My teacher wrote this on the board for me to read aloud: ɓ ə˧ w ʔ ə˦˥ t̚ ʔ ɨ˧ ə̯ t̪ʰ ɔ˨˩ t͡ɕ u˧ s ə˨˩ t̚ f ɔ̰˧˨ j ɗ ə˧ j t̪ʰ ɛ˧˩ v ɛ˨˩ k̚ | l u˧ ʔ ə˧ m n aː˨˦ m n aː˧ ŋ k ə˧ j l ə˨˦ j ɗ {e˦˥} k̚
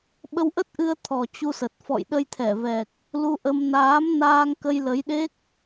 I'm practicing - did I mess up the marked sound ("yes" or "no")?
no